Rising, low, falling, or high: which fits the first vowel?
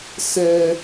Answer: high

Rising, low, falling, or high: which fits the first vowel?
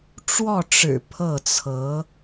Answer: falling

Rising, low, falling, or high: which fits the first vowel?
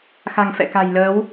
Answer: low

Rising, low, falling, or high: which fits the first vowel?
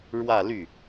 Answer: falling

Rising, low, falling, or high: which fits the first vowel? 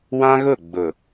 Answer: high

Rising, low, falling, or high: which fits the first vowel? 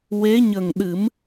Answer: rising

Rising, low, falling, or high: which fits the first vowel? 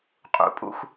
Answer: rising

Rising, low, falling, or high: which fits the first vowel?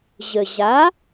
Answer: low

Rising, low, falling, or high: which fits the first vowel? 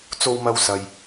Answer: high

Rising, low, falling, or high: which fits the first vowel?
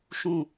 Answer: falling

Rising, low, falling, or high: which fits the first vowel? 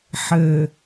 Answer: low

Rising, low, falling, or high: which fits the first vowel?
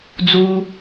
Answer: high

